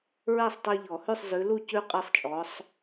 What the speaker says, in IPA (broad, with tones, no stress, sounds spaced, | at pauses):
ɹ ɛ˥˩ sˤ tˤ e˦ ʎ ɔ˨˩˦ h ʉ˥˩ sˤ z ʉ˨˦ l u˥˩ c ʉ˦ qʼ ɛ˦ sˤ t͡ʃʼ ɔ˨˦ sˤ